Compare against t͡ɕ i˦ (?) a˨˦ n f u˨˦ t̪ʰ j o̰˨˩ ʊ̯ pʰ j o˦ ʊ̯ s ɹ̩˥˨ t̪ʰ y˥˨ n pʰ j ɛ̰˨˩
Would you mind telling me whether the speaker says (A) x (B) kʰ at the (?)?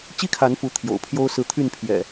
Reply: B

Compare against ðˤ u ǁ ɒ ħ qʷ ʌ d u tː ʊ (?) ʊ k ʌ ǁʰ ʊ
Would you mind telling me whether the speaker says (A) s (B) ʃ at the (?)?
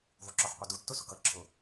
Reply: A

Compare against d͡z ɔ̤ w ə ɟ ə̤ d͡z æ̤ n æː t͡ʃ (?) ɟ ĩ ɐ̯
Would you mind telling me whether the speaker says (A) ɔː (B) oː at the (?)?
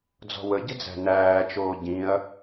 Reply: B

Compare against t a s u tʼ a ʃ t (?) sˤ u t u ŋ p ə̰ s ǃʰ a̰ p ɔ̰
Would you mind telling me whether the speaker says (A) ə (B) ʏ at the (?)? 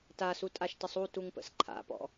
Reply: A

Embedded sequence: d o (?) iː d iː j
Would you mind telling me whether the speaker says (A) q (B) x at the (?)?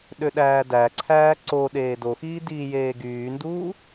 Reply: B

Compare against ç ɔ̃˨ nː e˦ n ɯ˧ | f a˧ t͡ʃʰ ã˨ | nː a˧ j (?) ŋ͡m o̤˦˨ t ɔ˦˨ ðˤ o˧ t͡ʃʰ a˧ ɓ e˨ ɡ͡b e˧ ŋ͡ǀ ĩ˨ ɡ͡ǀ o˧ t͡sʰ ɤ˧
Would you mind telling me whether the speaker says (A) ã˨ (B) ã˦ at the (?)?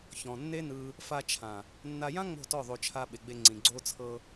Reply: B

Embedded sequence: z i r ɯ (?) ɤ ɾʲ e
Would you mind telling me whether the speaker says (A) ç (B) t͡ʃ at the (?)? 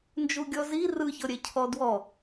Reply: A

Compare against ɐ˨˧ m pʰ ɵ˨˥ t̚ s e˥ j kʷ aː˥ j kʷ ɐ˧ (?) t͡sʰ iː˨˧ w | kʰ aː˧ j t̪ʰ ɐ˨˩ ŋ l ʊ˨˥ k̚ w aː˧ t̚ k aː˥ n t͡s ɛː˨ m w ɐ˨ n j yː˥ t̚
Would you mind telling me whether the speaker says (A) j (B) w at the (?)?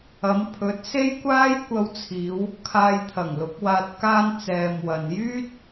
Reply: B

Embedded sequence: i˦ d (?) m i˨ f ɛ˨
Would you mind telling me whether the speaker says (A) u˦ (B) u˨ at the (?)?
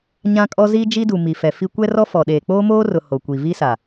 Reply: B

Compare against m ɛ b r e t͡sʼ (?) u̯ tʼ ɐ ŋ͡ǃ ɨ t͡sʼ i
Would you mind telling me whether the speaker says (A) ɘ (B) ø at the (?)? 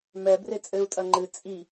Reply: A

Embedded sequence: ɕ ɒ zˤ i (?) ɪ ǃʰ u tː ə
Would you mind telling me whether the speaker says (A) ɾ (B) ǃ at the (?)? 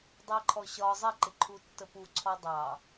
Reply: B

